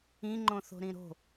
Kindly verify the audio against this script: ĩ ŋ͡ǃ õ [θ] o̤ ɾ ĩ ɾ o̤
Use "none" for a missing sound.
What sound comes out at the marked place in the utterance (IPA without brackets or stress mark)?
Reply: θ